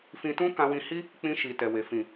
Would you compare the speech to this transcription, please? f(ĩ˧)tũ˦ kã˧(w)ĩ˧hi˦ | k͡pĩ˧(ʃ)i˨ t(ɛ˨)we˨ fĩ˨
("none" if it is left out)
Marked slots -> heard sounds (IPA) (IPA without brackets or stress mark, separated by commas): ĩ˧, w, ʃ, ɛ˨